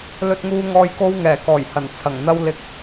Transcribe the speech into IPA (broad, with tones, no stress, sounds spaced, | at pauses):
l ɵ˧ t̚ ŋ uː˧ ŋ ɔː˧ j k o˥ w ŋ ɛː˨˩ k ɔː˨˩ j h ɐ˨˩ n t͡sʰ ɐ˨˩ ŋ n̪ ɐ˥ w l ɪ˥ k̚